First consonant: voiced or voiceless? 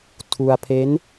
voiceless